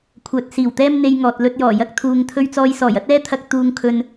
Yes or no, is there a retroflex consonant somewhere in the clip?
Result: no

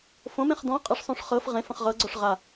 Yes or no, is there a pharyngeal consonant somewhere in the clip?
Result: no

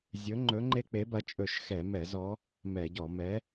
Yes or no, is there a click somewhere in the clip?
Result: yes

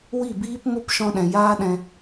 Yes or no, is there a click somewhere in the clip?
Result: no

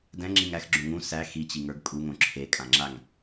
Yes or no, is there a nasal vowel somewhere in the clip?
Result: yes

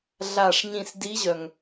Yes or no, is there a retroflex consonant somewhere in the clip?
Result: yes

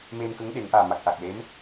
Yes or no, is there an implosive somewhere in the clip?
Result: yes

